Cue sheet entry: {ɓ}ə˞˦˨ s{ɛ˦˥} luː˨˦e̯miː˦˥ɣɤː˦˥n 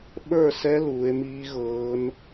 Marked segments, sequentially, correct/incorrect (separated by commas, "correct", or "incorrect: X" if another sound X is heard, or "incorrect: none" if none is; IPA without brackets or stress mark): correct, correct